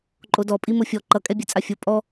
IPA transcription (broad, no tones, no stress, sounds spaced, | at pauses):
ǃʼ o d ɔ pʼ i m o fʲ ɔ ǃ ʌ kʼ ɛ bʲ ɛ t͡sʼ a fʲ o pʼ ɔ